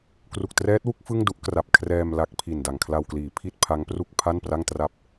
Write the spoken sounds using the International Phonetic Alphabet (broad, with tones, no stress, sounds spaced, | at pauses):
k r u˨˩ k̚ t r ɛː˦˥ t̚ w u˦˥ k̚ f ɯ˥˩ ŋ d u˥˩ ʔ k r a˨˩ p̚ kʰ r ɛː˧ m l a˦˥ k̚ pʰ i˨˩ n d a˨˩ ŋ kʰ l a˧ w k l iː˩˦ pʰ i˥˩ t̚ pʰ a˦˥ ŋ p r u˥˩ k̚ pʰ a˥˩ n p r a˥˩ ŋ t r a˥˩ p̚